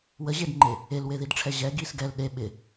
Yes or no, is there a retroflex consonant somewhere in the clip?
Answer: yes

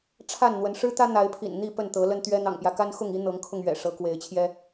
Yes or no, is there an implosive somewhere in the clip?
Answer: no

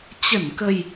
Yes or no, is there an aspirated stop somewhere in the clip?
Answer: no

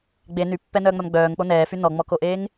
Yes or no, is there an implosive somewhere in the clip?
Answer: no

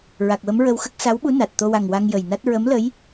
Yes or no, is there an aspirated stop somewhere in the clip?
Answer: no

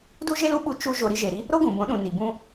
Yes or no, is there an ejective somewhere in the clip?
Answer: no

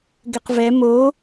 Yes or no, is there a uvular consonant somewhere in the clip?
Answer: yes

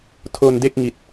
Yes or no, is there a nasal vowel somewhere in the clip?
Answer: no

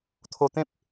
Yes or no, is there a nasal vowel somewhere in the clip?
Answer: yes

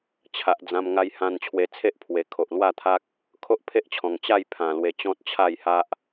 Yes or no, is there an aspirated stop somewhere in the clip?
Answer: yes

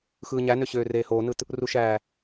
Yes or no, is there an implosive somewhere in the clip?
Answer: no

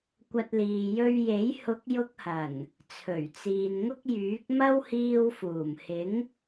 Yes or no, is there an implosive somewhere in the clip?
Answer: no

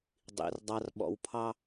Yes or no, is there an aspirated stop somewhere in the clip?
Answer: yes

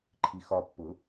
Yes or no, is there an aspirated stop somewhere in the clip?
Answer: yes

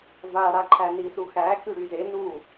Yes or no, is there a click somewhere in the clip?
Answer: yes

